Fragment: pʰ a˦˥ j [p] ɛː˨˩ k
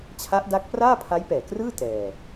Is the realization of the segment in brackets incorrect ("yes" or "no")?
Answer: no